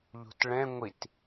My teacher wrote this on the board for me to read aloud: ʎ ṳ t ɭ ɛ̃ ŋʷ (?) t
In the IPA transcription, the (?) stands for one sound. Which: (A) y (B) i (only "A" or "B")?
B